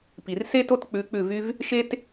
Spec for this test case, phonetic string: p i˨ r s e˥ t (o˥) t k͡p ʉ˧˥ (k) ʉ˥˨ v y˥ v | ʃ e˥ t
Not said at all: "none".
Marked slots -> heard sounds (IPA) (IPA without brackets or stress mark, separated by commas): o˥, k͡p